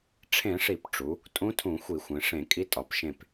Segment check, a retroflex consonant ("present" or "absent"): present